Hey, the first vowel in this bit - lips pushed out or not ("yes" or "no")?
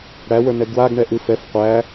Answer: no